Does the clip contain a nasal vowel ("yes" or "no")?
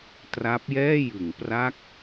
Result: no